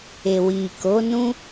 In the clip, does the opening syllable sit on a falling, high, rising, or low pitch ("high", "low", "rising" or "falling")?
low